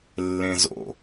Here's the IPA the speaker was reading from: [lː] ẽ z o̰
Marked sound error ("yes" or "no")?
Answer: no